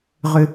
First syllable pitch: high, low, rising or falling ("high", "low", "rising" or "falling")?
high